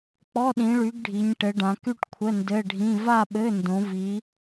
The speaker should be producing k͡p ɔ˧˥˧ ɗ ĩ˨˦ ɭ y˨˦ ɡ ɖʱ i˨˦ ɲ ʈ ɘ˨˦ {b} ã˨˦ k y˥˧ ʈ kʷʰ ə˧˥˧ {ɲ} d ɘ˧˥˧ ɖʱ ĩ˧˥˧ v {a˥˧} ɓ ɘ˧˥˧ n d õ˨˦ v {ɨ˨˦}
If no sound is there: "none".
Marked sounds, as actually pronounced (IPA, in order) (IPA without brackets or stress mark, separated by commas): ɖ, n, a˥˧, i˨˦